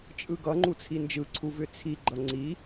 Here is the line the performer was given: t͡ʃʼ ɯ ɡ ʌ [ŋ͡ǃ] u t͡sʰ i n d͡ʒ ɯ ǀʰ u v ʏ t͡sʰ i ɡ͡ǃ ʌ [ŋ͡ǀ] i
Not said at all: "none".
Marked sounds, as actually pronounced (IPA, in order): ŋ͡ǃ, ŋ͡ǀ

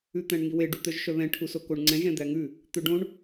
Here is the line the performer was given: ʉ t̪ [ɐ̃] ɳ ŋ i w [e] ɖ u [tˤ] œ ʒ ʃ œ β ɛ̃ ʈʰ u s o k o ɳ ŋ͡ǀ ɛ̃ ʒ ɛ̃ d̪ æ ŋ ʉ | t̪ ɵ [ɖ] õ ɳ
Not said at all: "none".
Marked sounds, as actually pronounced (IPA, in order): æ̃, e, t̪, ɖ

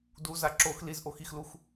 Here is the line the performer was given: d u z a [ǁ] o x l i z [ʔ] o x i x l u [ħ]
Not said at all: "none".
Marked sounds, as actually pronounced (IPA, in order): ǁ, ʔ, x

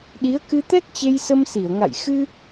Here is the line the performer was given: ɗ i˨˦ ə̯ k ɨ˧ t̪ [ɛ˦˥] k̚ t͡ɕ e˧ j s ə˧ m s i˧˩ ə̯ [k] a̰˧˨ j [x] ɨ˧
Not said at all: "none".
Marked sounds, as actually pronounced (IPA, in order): ɛ˦˥, ŋ, x

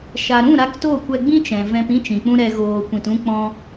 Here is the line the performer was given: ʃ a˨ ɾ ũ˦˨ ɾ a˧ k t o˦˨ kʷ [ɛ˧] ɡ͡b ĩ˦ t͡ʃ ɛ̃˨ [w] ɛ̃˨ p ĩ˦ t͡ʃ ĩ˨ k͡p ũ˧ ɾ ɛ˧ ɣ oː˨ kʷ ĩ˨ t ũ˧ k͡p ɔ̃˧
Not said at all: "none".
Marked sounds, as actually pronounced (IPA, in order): ɛ˧, v

